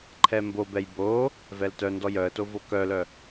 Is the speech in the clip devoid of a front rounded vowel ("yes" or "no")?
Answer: no